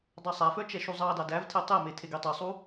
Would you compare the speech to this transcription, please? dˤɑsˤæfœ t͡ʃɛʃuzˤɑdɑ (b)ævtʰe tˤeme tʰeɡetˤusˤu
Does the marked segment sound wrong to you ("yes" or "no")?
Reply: yes